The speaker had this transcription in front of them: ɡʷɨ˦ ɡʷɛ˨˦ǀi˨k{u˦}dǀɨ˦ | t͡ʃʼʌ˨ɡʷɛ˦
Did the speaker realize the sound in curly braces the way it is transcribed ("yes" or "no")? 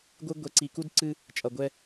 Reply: yes